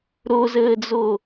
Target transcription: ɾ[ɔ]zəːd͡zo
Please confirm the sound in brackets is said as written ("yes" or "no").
no